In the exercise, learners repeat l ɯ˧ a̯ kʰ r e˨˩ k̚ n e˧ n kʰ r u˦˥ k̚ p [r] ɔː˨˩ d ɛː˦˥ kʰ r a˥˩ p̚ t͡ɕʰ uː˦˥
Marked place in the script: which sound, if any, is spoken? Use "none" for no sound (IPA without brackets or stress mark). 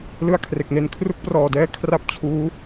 r